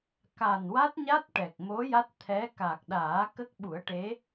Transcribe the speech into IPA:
k a˨˩ n w a˦˥ t̚ ɲ a˦˥ t̚ ʈ ɛ˨˩ k̚ m o˧˥ j a˦˥ t̚ t̪ʰ ɛ˧˥ k a˨˩ k̚ ɗ aː˨˩˦ k ə˦˥ k̚ ɓ u˨˩˦ ə̯ ʈ e˧˥

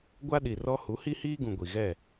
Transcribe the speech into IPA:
ɡʷ a˦ ɗ i˨ r ɔ˦ h u˨˦ h i˦ h iː˦ ɡ ũ˨ ɡʷ i˨ ɣ ɛ˦˨

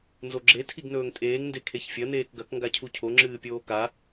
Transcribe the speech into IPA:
n z o ɡ͡ǁ e tʰ i ɡ n ɵː ŋ tʼ eː ŋ n d e kʰ e ç fʲ ɐ n eː k ɡ ɐ k ŋ ɡ a cʰ u cʰ o ŋ͡ǁ ɨː pʲ oː k a

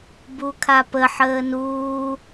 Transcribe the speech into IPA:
b u kʰ a p ə ħ əː n uː

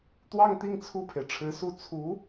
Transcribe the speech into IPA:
t̪ w ɑ˥˧ ŋ t̪ i˥˧ ŋ t͡sʰ u˥˩ pʰ e˩ ɪ̯ ʈ͡ʂʰ ɻ̩˧˥ s u˥˩ t͡sʰ u˧˥

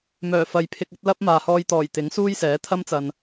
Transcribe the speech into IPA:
m œː˨˩ f ɐ˨˧ j pʰ ɪ˧ k̚ ɐ˥ t̚ l ɐ˥ p̚ m aː˨ h ɔː˧ j t̪ ɔː˨˩ j t̪ ɪ˨˥ ŋ s uː˥ j s ɛː˨˥ t̪ʰ ɐ˥ m t͡s ɐ˨ n

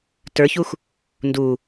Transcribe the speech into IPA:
t ə˞ ç u x | n d u

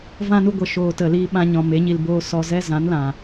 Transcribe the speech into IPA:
v ã˧ n u˧ ɡʷ ə˨ ʃ oː˨ t ə˨ l iː˧ ɓ ã˧ ɲ ɔ̃˨ m e˨˦ ɲ i˧ l b oː˦ s ɔ˧ z ɛ˦ z ã˨˦ n l ã˨

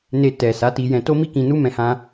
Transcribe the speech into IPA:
n e˧ t ɛ˨ s a˨˦ t i˧ j ɛ̃˧ t o˦ m i˦ k ĩ˧ n u˦ m ɛ̃˦ h ã˦

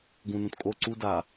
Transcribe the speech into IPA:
ɡ ũ n ũ t kʼ o ǀ u d a

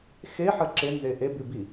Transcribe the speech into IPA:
x e ħ ə ǁ e n z e ʔ e b ʉ b i

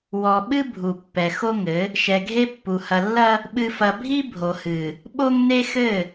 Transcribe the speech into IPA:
w ɔ˨ ɓ ɨ˦ bʱ u˨ pː ɛ˨ x o˦ ŋ ɘ˨˦ | ʃ ɛ˨ ɡʱ e˦ pː u˨ h ɐ˨ lː ɐ˦ | ɓ ɨ˨ f ɐ˨ bʱ i˦ bʱ o˨ h ɨ˨ | ɓ o˦ ŋ n e˦ x ɘ˦˨

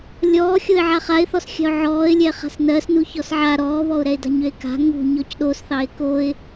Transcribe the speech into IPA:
lʲ ɔː xʲ o ɪ̯ ʕ a χ a ɪ̯ θ ɔ s xʲ a̤ ʊ̯ ʕ ɔː ɪ̯ lʲ ɛ χ a̤ s n ɜ s n u ç ɔ s ʕ a ɾ ɔː β ɔ ʊ̯ ɾ ɛ ɪ̯ d a̤ ɲ ø ɪ̯ k a̤ ŋ ṳ ɲ ɔ c ɗ o s θ ɑ ɪ̯ k o ɪ̯

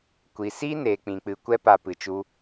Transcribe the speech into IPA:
kʷ i˨ s iː˦ n eː˨ k͡p ĩ˨ k͡p ɨ˨ kʷ ɛ˦ p a˧ p ɨ˨ t͡ʃ u˧

